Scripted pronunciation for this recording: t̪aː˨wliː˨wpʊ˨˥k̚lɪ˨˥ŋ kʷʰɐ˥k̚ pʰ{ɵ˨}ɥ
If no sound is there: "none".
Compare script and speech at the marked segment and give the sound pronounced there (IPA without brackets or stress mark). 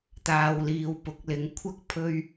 ɵ˥